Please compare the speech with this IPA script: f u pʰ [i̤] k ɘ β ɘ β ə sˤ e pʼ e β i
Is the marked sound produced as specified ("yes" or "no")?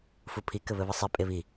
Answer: no